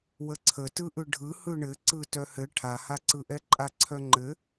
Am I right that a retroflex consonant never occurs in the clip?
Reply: no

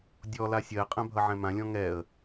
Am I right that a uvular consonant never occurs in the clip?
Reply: no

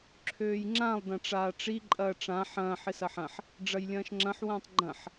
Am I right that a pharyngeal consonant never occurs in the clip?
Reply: no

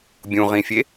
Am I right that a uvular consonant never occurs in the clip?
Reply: no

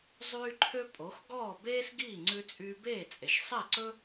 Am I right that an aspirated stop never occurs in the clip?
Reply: no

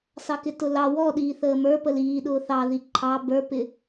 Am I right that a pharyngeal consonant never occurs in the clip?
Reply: yes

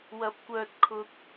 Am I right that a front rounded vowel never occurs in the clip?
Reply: no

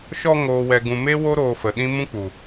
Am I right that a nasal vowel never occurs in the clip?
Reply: no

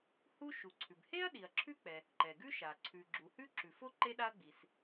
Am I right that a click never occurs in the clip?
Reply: no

